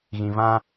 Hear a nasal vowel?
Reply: yes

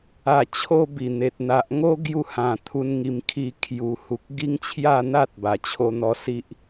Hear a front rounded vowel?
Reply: no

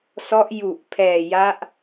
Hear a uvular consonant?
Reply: no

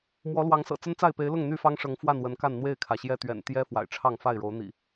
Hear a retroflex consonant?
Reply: yes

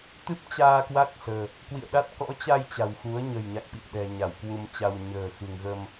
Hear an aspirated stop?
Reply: no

